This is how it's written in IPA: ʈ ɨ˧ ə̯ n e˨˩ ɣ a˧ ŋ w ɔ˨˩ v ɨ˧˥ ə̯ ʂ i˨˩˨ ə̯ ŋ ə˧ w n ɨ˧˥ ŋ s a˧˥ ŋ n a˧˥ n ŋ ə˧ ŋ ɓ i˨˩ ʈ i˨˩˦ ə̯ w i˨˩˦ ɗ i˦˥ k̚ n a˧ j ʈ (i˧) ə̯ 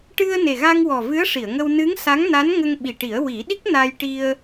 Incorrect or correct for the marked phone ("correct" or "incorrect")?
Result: correct